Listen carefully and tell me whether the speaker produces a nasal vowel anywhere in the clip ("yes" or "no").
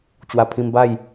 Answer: yes